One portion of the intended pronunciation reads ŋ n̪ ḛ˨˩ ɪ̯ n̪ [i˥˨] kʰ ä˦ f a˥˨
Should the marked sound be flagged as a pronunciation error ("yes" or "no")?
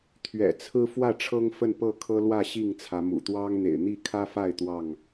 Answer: no